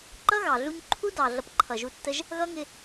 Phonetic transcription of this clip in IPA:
ǃʌ˦ɣɑ˨ɮu˧ɲ ǃʰu˦ dɑ˨ ɮʌ˧pǃʰʌ˨ʒu˧tːə˦ʒ | ɣʌ˦ ŋɪ˧

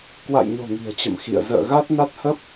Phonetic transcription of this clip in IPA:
kwa̰˧˨jɲo̤˨˩ ŋi̤˨˩ə̯t͡ɕə̰˧˨m xḭ˧˨ə̯ zə̰ː˧˨ɣa˦˥t̚na˦˥t̚ hə˦˥p̚

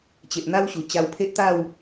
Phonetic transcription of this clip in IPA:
t͡ɕe˨ʔn̪a˦wɕu˨˩ t͡ɕa˧wpʰe˦ʔt̪a˥˧w

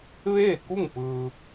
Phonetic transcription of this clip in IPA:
ʋeː˥˨ku˥˨ŋpɯː˧

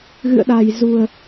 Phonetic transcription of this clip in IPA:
ɣɨ̰˧˨ə̯ɗa˨˩jzu˨˩ə̯

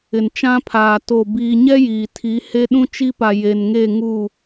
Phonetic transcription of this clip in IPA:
ɪ˨nt͡ʃã˦pʰaː˨ to˨ biː˨ɲɛ˦ jiː˨tʰi˨˦ he˦ɗũ˦t͡ʃi˦pa˨ je˨nŋe˦˨ ŋuː˦˨

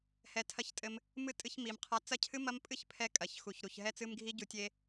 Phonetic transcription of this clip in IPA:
hɛ˧tʰɐ˦˨ç tʼɘ˧m | mɨ˦tʼɨ˧çmi˨m qʰa˧ t͡sɐ˦cʰɨ˦mɐ˦m pʼɨ˦çpʰɛ˧ kʼɐ˨çxu˨çɾu˨ç ɦɛ˧t͡sɨ˧mɡʱi˧ ɟu˨˦tʲe˧

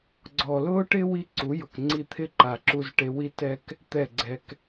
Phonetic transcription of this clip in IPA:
ɡ͡ǀɔː˨lʊː˦ʈɪ˦ wi˦ ǀu˨˦jʊ˨kŋ͡ǀi˧t̪ʰɪ˦ ǃa˨ǁu˧z ʈe˧wi˦ tɛ˦k | t̪ɛ˦˨ɡ͡ǀɛ˧k

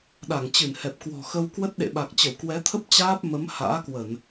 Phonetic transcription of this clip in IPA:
ɗa˧˩ŋt͡ɕɨ˧˩nhɛ˨˩p̚ kwɔ̤˨˩xə˧wkwə˦˥t̚ ɗḛ˧˨ɓa˨˩k̚ t͡ɕə˧˩wkwɛ˨˦t̪ʰə˦˥p̚ t͡ɕaː˦˥p̚mə˨˦m ha̰ː˧˥kwə˧˩˨n

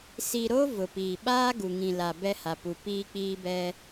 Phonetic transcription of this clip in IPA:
si˨ɾo˦ vʊ˨piː˨ ɓaː˦ ɡu˨ŋĩ˨la˨ bɛ˦ha˨pu˨ piː˦k͡piː˦bɛ˦

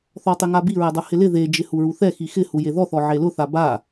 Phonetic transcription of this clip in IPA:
θɔtˤɪŋabi ɹɛdˤohɪlɪ ðed͡ʒɪ huɹuθɛ xixɪ hujeðɔθɔ ʕelʊθa ba

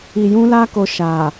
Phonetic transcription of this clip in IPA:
i˧jũ˦la˦ko˧ ʃa˨

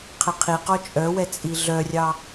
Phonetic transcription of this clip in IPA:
qʰɛqʰi qɔt͡ʃʼœwɛ t͡sʼiɮœrʲɑ

